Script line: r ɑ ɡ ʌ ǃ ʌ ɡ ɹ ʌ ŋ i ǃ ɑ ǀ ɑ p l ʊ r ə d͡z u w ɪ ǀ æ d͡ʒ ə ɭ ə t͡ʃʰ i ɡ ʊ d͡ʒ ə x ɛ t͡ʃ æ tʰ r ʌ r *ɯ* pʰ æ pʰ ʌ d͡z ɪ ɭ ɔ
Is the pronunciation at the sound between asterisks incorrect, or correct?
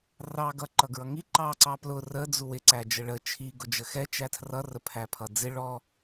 incorrect